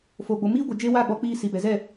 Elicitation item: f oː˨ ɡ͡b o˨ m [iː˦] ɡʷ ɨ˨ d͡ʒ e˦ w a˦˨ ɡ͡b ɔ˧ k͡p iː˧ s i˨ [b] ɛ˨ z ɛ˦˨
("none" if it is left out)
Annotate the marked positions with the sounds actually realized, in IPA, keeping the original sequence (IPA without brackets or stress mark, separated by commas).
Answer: iː˦, b